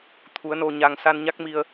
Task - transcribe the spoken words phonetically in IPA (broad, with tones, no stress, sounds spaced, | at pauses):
t̪ʰ u˨˦ ə̯ n o˧ ɲ a˧ ŋ s a˧ n ɲ a˦˥ k̚ m i˧ ə̯